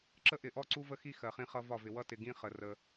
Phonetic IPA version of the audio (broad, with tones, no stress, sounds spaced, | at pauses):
ǁ ə˦ ʔ ɪ˨ ʔ ɔ˦ ǀ u˦ v ə˦ x i˦ x ɜ˨ χ ĩ˦ χ ʌ˦ v ɒ˦˨ v ɪ˨ w ʌ˦ t ɪ˨ ɡ ĩ˦ χ ə˨ r ə˦